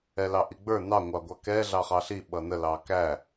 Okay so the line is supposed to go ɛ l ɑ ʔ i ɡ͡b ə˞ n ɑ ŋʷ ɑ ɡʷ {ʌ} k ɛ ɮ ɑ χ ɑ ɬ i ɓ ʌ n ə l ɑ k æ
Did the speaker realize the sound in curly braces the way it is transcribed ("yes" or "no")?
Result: no